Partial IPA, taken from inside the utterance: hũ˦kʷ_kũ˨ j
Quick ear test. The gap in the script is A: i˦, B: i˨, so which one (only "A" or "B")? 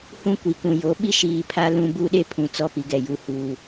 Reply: B